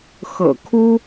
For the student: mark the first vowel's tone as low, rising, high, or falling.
low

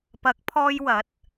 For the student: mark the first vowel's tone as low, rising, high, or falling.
rising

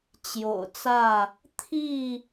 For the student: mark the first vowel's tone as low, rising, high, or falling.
low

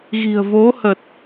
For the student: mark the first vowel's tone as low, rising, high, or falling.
low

